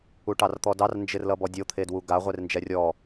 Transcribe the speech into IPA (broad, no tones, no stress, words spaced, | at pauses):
uʈɑrt̪ɔdɑr nd͡ʒɪrlʌbɔdʲo t̪ʰedwuɡa ʁʷernd͡ʒɛrʲɔ